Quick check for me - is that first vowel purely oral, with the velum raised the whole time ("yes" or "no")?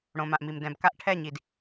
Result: no